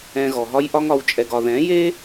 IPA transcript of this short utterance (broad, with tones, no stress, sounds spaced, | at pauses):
ɛ̃˧ ɣ ɔ˨ ɦ ɒ˦ j ʔ ɒ˦ ŋ ɒ˨˦ w t͡ʃʼ ɛ˧ ɡ ɒ˧ ð ɛ̃˨˦ j e˦